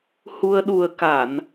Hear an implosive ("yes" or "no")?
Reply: yes